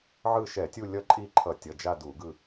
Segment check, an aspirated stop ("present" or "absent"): present